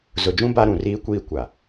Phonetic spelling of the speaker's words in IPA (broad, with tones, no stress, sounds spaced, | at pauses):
z ʊ˨ d͡ʒ ũ˦ b a˦ ɾ ũ˨ r iː˦ kʷ iː˦ kʷ a˨